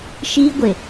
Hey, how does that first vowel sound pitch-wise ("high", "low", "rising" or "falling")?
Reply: high